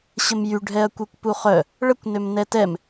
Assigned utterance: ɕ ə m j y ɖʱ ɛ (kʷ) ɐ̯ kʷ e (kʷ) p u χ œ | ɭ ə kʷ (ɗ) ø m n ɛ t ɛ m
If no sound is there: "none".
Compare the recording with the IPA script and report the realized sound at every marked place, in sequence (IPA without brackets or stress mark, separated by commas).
none, kʷ, n